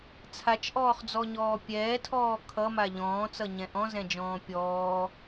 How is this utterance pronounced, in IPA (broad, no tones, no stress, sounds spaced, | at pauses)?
t͡sʰ a t͡ʃ ʔ ɔː χ d͡z ɔ ɲ ɔː pʲ ɛː tʰ ɔː kʰ ʌ m a ʎ ɔ̃ː t͡s ʌ ɲ ɛ̃ ʔ ɔ̃ z ɛ̃ d͡ʒ ɔ̃ː pʲ ɔː